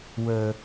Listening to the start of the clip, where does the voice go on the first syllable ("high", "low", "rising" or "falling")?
low